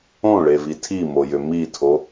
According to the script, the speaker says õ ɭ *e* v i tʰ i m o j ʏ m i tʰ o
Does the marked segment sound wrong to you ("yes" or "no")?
no